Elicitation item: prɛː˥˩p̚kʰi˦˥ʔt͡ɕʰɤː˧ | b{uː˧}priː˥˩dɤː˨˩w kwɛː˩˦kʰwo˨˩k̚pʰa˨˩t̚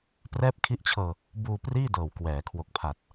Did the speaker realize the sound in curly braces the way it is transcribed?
yes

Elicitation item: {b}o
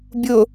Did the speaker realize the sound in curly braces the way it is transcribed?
no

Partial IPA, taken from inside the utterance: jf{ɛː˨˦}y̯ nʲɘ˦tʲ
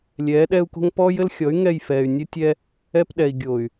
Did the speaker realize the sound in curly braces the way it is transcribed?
no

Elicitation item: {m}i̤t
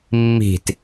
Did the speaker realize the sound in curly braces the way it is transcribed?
no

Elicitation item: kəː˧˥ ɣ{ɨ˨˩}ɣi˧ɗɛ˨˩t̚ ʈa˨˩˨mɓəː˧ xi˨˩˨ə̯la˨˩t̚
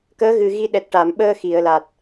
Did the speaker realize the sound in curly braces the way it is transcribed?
yes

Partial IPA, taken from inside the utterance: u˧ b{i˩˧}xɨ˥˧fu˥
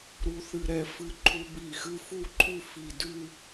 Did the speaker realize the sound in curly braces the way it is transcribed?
no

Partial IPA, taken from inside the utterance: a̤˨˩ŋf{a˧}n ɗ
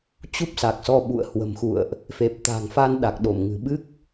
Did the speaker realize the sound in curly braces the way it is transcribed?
yes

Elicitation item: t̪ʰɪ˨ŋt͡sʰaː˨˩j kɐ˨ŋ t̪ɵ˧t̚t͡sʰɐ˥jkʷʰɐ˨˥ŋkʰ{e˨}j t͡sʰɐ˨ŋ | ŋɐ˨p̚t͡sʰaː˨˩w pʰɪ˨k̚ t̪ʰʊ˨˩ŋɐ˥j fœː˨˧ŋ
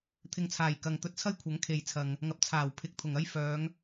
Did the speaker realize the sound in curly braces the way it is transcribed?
yes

